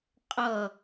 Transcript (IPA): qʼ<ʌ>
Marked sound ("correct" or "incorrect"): correct